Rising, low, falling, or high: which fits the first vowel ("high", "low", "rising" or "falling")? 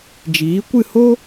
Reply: rising